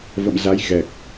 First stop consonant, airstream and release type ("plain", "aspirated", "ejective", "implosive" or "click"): plain